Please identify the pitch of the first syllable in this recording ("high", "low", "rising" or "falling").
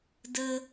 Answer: high